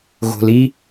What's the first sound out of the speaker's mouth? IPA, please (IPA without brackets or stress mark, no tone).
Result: ɣ